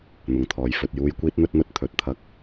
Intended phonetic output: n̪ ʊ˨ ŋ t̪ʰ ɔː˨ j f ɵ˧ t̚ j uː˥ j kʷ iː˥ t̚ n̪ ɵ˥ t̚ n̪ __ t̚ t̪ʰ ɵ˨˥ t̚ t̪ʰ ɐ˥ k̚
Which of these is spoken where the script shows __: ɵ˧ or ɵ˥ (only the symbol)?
ɵ˥